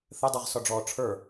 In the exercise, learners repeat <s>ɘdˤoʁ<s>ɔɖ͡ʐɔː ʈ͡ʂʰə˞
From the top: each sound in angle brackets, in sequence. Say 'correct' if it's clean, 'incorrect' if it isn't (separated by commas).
incorrect, correct